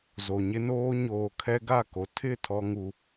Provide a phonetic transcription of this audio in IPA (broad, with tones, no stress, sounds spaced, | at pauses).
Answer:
z o˨ ɲ ɪ˦ n oː˦ ɲ oː˨ kʰ ɛ˦ ɡ a˦˨ k o˨ tʰ ɪ˦˨ tʰ ɔ˦ ŋ u˦